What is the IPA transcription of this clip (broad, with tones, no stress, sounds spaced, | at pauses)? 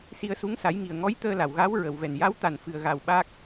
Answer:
s i˧ ə̯ s u˧˥ ŋ s a˨˩˦ j ŋ i˨˩ ə̯ ŋ ɔ˧˥ j t̪ əː˧ l a˨˩˨ w ɣ a˧˥ w ɹ ə˨˩˨ w v ɛ˨˩ n j a˧˥ w t̪ a˨˩ n f ɨ˨˩ ə̯ ɣ a˨˩ w ɓ a˦˥ k̚